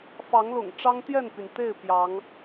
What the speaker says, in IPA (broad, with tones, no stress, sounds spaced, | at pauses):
f ɑ˨˦ ŋ l ʊ̰˨˩ ŋ ʈ͡ʂ ɑ˦ ŋ t̪ j ɛ˥˨ n p y˩ n t̪ e˥˨ ɪ̯ p j ɑ˨˦ ŋ